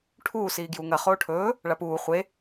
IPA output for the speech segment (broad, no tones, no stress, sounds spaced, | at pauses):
ʈʰ uː s iː ɡ j u ŋ ɐ χ oː ʈʰ ɵː | ɭ a p uː χʷ e